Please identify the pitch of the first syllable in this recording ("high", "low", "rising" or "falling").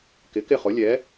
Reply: rising